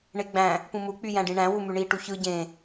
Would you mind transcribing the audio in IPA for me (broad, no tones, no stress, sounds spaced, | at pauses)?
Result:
ɳ e ɡ͡b æ̃ | p ũ m u k͡p y j æ̃ ɖ ĩ ɳ æ̃ w u m y ɳ i ʈ u ç ɯ ɟ ẽ